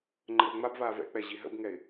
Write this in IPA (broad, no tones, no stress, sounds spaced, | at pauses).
ŋ͡ǃ ə r ŋ͡m a b v aː v ɛ̰ k͡p ɛ ʑ i ɦ ə̰ b ŋ ɛ ɪ̯